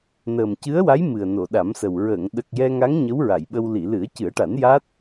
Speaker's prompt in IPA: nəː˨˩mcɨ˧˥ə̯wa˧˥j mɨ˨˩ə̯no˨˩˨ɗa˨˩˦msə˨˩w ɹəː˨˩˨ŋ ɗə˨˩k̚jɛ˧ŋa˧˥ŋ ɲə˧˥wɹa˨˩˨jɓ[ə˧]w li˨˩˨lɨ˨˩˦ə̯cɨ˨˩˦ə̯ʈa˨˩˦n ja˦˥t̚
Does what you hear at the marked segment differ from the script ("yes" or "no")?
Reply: no